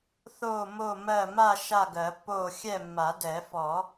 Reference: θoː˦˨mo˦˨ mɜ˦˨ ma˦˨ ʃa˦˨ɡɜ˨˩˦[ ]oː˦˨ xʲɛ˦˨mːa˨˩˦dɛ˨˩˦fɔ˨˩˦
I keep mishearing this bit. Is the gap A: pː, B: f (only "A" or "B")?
A